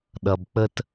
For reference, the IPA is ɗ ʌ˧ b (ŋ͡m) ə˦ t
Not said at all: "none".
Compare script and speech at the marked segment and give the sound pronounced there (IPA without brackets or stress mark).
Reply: k͡p